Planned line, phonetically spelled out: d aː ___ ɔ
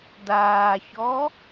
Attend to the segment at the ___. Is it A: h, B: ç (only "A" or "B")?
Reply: B